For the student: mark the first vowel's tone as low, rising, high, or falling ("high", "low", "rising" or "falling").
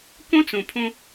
high